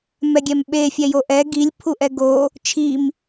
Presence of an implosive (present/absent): present